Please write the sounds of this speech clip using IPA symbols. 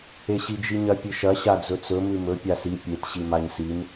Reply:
eɕid͡ʒiɲɐ pʲɨʃɐ ɕad͡zɵt͡sɵ mʉmɵ pʲasi pʲet ɕimaɲsim

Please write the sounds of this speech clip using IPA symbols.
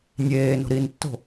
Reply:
nʲeːno̤ ɾintːo̤

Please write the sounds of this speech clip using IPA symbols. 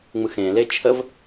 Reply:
ŋ͡mɯxẽle t͡ʃʰəv

